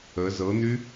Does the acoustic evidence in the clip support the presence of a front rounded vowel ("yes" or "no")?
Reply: yes